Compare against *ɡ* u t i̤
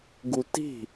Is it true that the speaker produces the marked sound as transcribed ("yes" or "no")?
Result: yes